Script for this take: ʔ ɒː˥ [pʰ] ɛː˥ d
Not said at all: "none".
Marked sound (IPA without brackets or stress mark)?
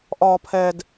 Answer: pʰ